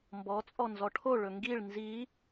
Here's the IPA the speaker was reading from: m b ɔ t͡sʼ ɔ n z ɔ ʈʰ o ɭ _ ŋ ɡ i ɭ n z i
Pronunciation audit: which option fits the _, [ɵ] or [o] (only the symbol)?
ɵ